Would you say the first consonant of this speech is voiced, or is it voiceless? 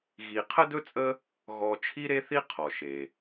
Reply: voiced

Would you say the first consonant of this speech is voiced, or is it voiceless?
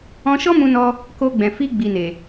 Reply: voiceless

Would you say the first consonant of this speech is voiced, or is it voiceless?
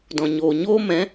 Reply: voiced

